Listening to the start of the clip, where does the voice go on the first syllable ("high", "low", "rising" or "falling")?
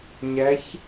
rising